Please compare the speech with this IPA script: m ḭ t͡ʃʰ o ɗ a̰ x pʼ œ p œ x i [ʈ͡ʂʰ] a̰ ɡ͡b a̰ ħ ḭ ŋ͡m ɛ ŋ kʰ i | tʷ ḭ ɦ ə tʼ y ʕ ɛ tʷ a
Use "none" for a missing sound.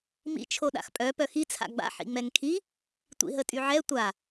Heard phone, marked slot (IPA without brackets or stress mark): t͡sʰ